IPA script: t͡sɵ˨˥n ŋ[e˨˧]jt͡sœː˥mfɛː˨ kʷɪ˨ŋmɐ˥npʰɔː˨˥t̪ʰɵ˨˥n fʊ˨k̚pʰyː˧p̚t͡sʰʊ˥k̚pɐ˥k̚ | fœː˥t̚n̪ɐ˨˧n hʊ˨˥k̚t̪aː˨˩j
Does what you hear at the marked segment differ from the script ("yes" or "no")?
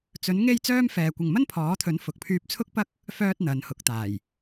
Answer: yes